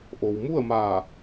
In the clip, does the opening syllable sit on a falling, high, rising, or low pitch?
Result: low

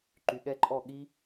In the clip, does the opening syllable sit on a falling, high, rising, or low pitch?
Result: low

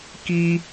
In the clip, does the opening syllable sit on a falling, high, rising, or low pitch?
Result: high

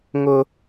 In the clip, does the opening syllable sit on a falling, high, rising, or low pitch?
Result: high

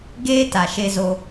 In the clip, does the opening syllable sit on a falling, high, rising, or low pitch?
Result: high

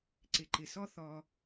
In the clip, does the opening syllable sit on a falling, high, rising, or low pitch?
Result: low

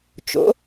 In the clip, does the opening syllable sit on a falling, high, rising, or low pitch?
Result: rising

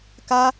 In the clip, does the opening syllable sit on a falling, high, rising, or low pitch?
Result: high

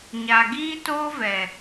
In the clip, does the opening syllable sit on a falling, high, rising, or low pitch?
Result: low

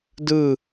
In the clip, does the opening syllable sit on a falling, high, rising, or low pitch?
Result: falling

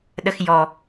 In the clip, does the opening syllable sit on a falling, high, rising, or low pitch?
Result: high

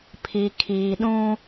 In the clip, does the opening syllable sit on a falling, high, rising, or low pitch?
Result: low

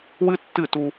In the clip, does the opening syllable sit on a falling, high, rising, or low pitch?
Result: high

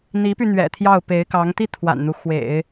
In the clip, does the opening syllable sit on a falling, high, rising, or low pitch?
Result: rising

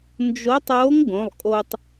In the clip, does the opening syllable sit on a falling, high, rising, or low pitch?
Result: rising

